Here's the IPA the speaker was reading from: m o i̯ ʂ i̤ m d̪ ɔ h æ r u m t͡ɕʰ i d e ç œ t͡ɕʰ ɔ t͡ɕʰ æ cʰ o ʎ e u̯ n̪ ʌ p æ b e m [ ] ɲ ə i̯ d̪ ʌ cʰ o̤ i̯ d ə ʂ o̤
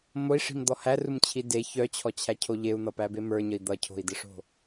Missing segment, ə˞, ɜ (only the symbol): ə˞